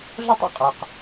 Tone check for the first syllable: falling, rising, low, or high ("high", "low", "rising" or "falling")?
high